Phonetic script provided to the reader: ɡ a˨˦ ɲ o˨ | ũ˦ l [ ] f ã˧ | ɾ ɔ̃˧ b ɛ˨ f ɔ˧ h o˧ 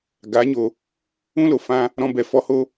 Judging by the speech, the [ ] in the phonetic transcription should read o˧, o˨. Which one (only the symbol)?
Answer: o˨